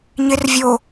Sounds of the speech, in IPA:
ɲ ɪ r vʲ o

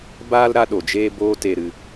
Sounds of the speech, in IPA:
b aː˦ l ɾ a˦ ɗ o˨ d͡ʒ eː˦ b oː˦ t e˨ ɾ ɨ˨

